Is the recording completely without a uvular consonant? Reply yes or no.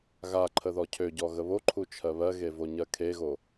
yes